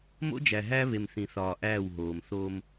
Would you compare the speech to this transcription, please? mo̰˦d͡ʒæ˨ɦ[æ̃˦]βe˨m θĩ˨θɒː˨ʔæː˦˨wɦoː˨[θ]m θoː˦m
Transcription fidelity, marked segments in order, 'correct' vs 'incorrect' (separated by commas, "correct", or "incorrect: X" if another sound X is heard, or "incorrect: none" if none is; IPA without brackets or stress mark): incorrect: æ˦, incorrect: none